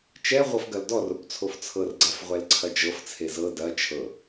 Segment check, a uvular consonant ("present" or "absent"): present